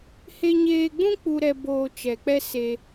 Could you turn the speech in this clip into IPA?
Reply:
he˧ɲeː˧ɡ͡bũ˦ k͡pu˦ɾɛ˦ boː˧t͡ʃɛ˨k͡pɛ˦ se˧

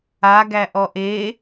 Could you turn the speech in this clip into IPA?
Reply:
aɡæʔɔ ʔe

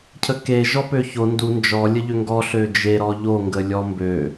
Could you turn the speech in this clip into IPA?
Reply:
cʰəke ʒɔpøço ndu nd͡ʒɔ lʲəʎøŋɡɔ ɬød͡ʒe ɾɔʎo ŋɡəlʲɔmbø

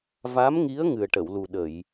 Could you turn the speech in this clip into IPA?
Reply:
va˧˥mŋi˧˥ə̯ ŋɨ˨˩ə̯ʈə˨˩˨wlu˨˩ɗə˨˩˨j

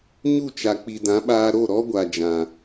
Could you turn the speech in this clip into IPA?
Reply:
ɲu˦˨t͡ʃa˨k͡pi˨dã˨˦ ɓaː˧ɾo˦˨ɾɔ˦ɡʷa˨ d͡ʒã˨

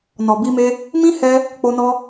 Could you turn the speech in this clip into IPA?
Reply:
nɔ˨bi˧me˧ | mĩ˦hɛ˧ | k͡po˧nɔ˧

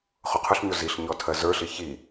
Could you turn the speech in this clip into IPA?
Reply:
χʊqʰʊɬɲo ziɬɲɔ tʰɜzə˞ɬi çi

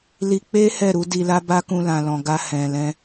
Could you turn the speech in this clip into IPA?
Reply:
li˧k͡pe˦ hɛ˦˨ɾu˨˦di˧la˦ ba˦kũ˧ lã˨lɔ̃˨ɡa˧ hɛ̃˨lɛ̃˧

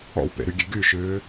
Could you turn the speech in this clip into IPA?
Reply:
ɔ̰wpḛɾyɡʲe ɡyʃʏː

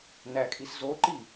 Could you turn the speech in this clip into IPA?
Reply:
nækʼiszoǃi

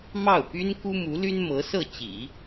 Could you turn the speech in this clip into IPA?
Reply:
mɑ˥˩ʊ̯py˥n ku˥mu˧˥ ly˥nmɤ˧˥sɤ˥˩ t͡ɕḭ˨˩˦

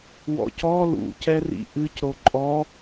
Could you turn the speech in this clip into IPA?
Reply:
wɔ̰cɔ lṵ cɛrḭʔɨc ɾoǃʼɔ

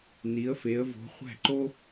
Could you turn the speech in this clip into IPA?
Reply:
ni˨˦ə̯fe˨˦ə̯ vo̤˨˦χʷæ̤˥˩ǃo˥

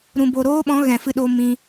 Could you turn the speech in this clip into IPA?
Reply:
ɾũ˨bo˨ɾoː˦ɓɔ̃˨˦ ɣɛ̃˨fɨ˧ɗo˧ mĩ˧

